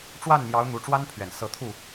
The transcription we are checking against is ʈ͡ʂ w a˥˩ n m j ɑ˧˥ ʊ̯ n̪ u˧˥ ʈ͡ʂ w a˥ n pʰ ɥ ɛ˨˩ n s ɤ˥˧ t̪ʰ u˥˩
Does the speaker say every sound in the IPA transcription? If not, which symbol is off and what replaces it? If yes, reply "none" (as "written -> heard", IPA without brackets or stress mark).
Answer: none